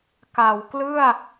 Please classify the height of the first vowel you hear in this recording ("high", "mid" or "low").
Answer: low